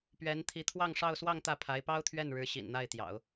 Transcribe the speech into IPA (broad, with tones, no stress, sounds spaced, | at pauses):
p ɥ ɛ˧˥ n t̪ʰ i˧˥ t̪ʰ w ɑ˥˧ ŋ ʂ ɑ˥˧ ʊ̯ s w ɑ˥˧ ŋ t̪ ä˥˩ pʰ a˧˥ ɪ̯ p ɑ˥ ʊ̯ t̪ʰ ɥ ɛ˥˩ n ɻ ɻ̩˧˥ ɕ ḭ˨˩ n n̪ a˥˩ ɪ̯ t̪ j ɑ̰˨˩˦ ʊ̯